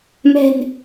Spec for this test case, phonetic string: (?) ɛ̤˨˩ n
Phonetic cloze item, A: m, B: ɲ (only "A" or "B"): A